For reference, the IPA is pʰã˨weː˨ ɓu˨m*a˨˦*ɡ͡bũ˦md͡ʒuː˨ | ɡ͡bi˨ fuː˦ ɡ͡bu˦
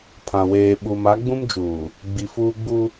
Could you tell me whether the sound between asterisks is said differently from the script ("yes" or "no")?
no